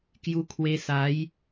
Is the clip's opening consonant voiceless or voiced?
voiceless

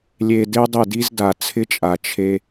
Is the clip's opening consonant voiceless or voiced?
voiced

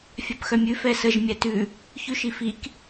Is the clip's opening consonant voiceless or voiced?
voiceless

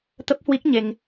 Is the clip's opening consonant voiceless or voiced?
voiceless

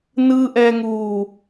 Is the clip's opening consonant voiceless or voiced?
voiced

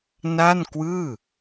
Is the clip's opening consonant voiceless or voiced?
voiced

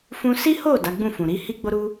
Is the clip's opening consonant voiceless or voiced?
voiceless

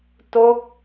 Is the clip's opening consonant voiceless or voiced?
voiceless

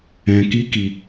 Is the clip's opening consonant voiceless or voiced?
voiceless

